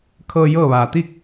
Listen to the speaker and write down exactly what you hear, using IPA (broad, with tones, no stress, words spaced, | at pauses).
kʰɤː˧ jɤː˥˨ʋaː˩ t̪i˥˨k̚